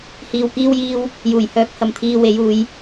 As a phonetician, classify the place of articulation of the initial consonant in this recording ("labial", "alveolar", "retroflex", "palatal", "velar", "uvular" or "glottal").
glottal